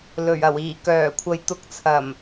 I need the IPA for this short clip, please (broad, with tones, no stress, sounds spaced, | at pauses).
l ɵ˨˩ ɥ ɐ˨˩ w iː˨˩ k œː˨˩ kʷʰ ɐ˨ j t̪ ʊ˨˥ k̚ t͡sʰ ɐ˨˩ m